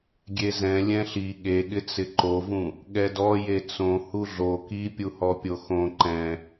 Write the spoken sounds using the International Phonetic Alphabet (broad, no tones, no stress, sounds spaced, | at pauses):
ɡʲ e z ɛ̃ lʲ ɛ̃ ɬ i ɠ e ɠ ɪ t͡s ɪ ǃ o v ũ | ɠ ɛ d ɔ j e t͡s õ h u ɮ o k i pʲ u h ɔ pʲ o x õ ǃ ɛ̃